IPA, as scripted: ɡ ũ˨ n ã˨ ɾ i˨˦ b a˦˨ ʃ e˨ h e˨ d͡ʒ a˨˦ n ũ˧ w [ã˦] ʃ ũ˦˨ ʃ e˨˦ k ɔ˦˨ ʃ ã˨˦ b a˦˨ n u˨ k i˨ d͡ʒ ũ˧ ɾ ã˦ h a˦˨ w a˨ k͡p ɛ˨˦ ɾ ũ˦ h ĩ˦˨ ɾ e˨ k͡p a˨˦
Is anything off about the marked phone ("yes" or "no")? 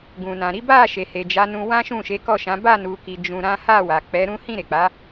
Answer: no